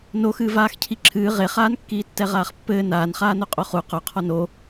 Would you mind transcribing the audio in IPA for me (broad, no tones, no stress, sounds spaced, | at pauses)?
n o x ɨː v aː x cʰ i ǁʰ ɨː ʁ e χ aː n kː iː tː ɛ ʁ aː χ pː ɘː n aː n χ aː n o qʼ o χ u q o qʰ ɔ n o